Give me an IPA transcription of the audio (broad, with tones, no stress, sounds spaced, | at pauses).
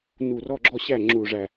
n u˧˩ r ɔ˥˨ ɡ͡ǁ ɔ˥˨ ɕ æ˥˨ ŋ͡ǁ u˧˩ ʐ æ˧˩